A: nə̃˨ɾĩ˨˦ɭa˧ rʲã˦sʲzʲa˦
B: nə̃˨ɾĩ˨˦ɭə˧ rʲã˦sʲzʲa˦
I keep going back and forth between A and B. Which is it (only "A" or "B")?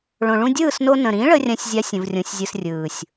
B